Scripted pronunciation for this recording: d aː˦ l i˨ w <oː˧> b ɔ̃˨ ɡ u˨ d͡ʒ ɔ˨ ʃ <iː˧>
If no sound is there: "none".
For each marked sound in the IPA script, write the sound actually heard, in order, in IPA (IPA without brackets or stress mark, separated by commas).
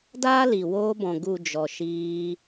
oː˧, iː˧